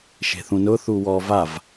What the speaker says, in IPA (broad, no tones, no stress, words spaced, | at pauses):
ʃe̤θũnʊ θuwɔ vav